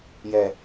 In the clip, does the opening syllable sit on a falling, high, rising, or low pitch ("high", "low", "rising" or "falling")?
low